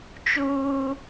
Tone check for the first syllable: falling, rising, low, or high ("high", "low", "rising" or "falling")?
high